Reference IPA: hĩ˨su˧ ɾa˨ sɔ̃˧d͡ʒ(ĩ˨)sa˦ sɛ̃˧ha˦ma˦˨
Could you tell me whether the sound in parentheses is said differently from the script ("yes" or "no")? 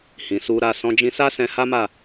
yes